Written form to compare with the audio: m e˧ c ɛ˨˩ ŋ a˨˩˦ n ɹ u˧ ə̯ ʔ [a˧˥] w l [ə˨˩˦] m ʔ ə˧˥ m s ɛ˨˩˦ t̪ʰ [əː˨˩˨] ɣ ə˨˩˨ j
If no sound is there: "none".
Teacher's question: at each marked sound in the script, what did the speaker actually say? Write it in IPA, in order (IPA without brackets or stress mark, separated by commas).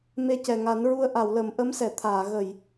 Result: a˨˩˨, ə˨˩˦, aː˨˩˨